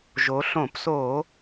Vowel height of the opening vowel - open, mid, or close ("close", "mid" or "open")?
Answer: mid